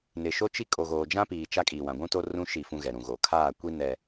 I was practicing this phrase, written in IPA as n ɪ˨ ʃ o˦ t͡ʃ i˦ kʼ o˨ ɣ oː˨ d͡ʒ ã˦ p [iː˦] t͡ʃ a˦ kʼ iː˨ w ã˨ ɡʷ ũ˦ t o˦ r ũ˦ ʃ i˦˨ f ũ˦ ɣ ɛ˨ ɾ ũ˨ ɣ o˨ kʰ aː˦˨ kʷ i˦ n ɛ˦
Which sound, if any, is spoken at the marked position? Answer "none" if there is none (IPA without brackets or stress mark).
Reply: iː˨